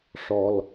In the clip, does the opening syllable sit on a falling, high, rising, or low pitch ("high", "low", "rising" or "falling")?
low